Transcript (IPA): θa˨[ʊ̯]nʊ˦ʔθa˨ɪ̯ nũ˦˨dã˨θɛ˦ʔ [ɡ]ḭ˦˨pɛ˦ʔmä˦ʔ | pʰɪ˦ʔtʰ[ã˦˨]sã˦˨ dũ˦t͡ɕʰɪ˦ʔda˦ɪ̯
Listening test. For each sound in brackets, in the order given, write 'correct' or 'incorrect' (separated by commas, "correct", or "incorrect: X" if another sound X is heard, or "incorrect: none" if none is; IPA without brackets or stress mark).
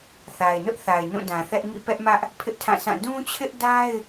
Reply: incorrect: ɪ̯, incorrect: ŋ, correct